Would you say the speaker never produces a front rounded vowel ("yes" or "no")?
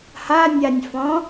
yes